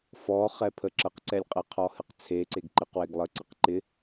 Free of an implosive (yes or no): yes